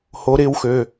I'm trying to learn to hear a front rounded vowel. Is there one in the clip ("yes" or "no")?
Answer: yes